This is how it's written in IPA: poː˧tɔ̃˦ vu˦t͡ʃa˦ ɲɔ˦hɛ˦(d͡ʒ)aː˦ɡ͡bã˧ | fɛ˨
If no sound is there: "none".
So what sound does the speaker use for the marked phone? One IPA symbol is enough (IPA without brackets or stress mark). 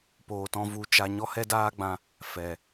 d